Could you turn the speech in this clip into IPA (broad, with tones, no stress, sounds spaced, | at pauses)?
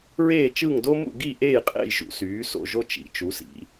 ɹ eː˦˨ t͡ʃ ɯ˦˨ ŋ d o˦ m ṵ˦˨ ɡ i˦˨ ʔ eː˦˨ j qʼ ḛ˦˨ j ʒ ṵ˩˧ s yː˩˧ s o̰˦˨ ʒ o˦ t͡ʃ ḭ˩˧ t͡ʃ u˩˧ s ḭ˩˧